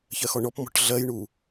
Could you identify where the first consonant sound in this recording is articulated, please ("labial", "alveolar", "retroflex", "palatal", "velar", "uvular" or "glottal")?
palatal